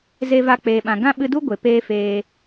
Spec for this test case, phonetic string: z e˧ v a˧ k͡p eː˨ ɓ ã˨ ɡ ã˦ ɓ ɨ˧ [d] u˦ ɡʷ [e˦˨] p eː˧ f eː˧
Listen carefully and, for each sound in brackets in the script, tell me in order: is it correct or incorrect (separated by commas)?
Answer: correct, incorrect